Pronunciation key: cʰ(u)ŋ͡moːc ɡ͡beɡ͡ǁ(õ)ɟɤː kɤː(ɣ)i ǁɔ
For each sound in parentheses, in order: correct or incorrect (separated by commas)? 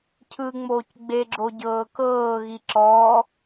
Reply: incorrect, incorrect, correct